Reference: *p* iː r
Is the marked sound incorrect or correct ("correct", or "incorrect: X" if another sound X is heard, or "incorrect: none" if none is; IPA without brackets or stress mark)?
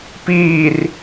correct